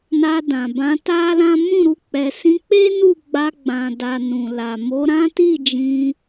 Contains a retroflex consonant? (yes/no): no